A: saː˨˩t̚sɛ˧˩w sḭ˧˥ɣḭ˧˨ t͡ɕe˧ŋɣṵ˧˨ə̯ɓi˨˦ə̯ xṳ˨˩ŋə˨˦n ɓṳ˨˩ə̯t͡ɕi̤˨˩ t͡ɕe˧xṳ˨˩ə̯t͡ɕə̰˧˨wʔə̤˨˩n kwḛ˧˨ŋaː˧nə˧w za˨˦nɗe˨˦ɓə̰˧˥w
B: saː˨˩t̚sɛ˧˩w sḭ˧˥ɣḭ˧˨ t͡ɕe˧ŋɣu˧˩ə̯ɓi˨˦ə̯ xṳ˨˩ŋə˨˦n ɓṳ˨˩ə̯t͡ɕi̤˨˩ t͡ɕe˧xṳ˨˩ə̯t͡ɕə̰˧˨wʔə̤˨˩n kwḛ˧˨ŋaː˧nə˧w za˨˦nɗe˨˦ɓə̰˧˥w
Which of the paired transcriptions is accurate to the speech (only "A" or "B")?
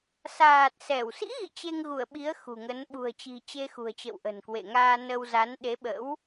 B